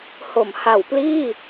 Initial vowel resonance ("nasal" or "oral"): oral